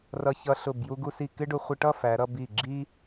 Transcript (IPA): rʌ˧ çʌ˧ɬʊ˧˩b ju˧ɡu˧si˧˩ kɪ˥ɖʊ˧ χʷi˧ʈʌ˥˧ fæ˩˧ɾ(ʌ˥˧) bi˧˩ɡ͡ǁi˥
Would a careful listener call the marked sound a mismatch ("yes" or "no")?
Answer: no